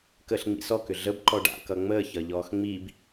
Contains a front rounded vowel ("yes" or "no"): yes